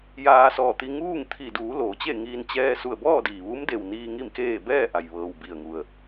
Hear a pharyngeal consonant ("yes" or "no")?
no